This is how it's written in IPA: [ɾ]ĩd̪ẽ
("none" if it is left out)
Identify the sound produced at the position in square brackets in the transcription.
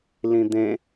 l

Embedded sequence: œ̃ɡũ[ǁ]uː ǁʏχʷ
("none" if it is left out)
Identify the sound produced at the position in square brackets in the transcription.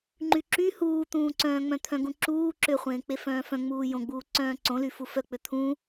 ǁ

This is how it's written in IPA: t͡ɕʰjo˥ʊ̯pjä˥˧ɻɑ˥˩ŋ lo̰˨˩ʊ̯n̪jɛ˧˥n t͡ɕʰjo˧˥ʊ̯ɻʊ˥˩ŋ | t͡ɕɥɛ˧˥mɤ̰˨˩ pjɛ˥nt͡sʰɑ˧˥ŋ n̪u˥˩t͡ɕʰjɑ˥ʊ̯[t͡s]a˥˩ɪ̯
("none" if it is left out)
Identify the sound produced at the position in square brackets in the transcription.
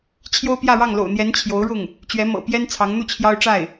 ʈ͡ʂ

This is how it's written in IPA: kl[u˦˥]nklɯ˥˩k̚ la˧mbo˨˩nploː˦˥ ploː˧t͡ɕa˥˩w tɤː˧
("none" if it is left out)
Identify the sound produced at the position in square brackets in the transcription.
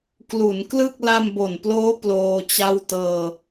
u˩˦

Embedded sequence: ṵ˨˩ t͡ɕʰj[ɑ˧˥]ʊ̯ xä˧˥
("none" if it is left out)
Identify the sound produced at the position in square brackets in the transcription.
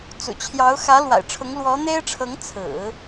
ɑ˧˥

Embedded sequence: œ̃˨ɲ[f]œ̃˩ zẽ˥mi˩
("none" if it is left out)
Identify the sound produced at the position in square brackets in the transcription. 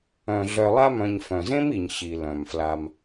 f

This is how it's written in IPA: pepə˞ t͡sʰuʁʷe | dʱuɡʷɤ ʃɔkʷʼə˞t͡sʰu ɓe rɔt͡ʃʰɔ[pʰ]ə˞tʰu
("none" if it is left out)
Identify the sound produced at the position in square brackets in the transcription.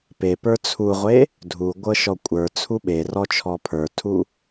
pʰ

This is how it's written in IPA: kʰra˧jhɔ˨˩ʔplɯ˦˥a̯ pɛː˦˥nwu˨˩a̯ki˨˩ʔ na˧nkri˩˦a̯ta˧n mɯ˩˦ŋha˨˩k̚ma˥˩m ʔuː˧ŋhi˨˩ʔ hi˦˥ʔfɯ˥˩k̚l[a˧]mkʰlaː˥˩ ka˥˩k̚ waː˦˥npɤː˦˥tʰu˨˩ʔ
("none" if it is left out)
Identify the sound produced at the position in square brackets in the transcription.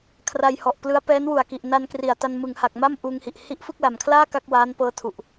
a˨˩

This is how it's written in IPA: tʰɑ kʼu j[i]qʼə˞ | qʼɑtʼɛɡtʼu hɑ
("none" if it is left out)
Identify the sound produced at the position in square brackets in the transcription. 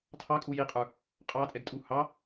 i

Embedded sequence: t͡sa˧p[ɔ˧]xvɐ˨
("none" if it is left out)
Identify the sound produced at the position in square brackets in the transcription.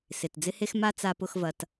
ʊ˧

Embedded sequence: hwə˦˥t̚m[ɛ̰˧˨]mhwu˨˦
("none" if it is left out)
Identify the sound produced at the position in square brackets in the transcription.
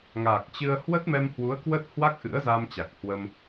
ɛ˧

